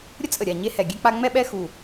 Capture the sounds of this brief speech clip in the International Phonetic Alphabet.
ɾʲ ə˥ t͡sʼ ə˧˩ ɾʲ a˧˩ ɲ e˥ h ɛ˧˩ ɡʲ ɛ˥ k͡p a˥ ŋ͡m ɛ˥ ɓ ɛ˥ x u˧˩

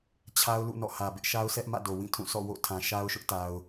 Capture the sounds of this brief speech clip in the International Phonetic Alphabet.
t͡ɕʰ a˦ ʊ̯ l ṵ˦˨ n ɔ̰˦˨ h ä˨ b ɪ˦ ʔ ʃ a˦ ʊ̯ s ɛ˦ ʔ m ä̰˦˨ d o˨ w ĩ˦˨ tʰ ũ˦˨ s ɔ̰˦˨ w o̰˦˨ tʰ ã˨ ʃ a˦ ʊ̯ ʃ ʊ˦ ʔ t a˨ ʊ̯

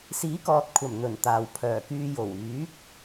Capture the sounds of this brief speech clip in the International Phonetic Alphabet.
s iː˨˥ k ɔː˨ t̚ kʷʰ ɐ˨˩ m n̪ ɵ˨˩ n t̪ aː˨ w pʰ œː˨˩ k yː˧ j o˨˩ w yː˨˥ k̚

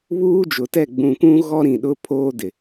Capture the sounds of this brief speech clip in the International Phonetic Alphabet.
β uː˦ d͡ʒ ʊ˨ t ɛ˦˨ ɡ͡b ũ˨ kʷ ũ˦ ɣ ɔ˦ ɾ ĩ˨ ɗ ʊ˦ pʰ oː˦ d ɪ˨

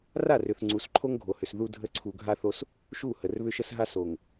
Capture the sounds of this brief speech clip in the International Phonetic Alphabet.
r a˦˨ r ʏ˨ θ ŋ͡ǀ u˨˦ s ǃʰ o˦ ŋ ɡʱ o˨ h ʏ˨ s ð u˦ dʱ ə˦ ǀʰ u˨ ɡʱ a˦ θ o˦ s | ʃ u˦˨ h ə˨ r β ʏ˦ ʃ ə˦ s ɦ a˦ s o˨ ŋ

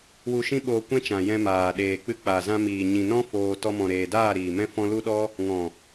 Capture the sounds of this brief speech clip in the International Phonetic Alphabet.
w u˧ ʃ ĩ˦ ɓ oː˧ kʷ ɛ̃˦ t͡ʃ ã˨ j ɛ̃˧ m aː˨ ɗ eː˨ k͡p ɨ˧ k͡p a˨ z ã˧ m iː˨ ɲ ĩ˨ n ɔ̃˦ f oː˧ t ɔ˧ m ɔ̃˨ ɾ eː˨ d aː˦˨ ɾ iː˨ m ɛ̃˦ f ɔ̃˧ l u˦ ɗ ɔ˦ | ŋ ɔ̃˨

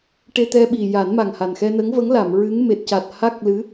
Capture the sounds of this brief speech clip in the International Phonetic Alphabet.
ʈ e˧ t̪ ɛ˧ ɓ i˨˩ j a˨˩˦ n m a˨˩ ŋ h a˨˩ n x ɛ˧ n ə˧˥ ŋ v ə˧˥ ŋ l a˨˩˨ m ɹ ɨ˧˥ ŋ m e˨˩ t̚ c a˨˩ t̚ h a˦˥ k̚ l ɨ˧˥

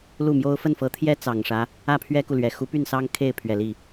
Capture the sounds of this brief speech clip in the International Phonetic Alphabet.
l u˥˩ m j o˥ ʊ̯ f ə˥˩ n f ɤ˧˥ t̪ʰ j ɛ˥ t͡s ɑ˨˩ ŋ ʂ ä˦ | ä˥˩ pʰ ɥ ɛ˥ k u˨ l ɥ ɛ˨˩ x u˧˥ p y˥˩ n s ɑ˥ ŋ kʰ e˥˩ ɪ̯ pʰ ɥ ɛ˨˩ l i˥˩

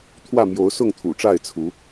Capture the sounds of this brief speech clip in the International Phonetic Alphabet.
t̪ʰ w ä˥˨ m j o˨˦ ʊ̯ s ʊ˥˨ ŋ t̪ʰ ṵ˨˩ ʈ͡ʂ a˥˨ ɪ̯ t͡sʰ u˨˦

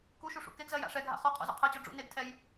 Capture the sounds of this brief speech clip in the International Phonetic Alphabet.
k u ʃ u ʂ ṵ k e ɡ z ɜ j a̰ ʂ ɛ ɡʱ a̰ χ ɔ qʰ ɔ̰ z ɔ̰ qʰ ɜ t͡ɕ ɔ ɖ͡ʐ ṵ n e ɡ tʰ ɛ j

